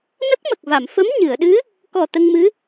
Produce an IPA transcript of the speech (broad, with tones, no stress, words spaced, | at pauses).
nə˦˥k̚mə˨˩k̚va˨˩˨m fə˧˥m ɲɨ˨˩˨ə̯ɗɨ˧˥ | kɔ˨˩ t̪ə˧ŋmɨ˧˥